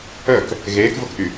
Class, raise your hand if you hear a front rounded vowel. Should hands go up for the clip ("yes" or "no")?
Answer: yes